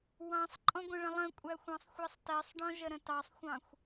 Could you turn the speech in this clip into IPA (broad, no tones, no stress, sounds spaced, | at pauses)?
w ɑ̃ sˤ ǃʼ ɔ̃ ɡʷ ə̃ ɭ ə̃ lˠ ə̃ kʷʼ æ xʷ ɑ̃ sˤ xʷ ɛ sˤ t ɛ sˤ ɖ ɔ̃ ʒ ə ɾ ə̃ t ɑ sˤ xʷ ɑ̃ xʷ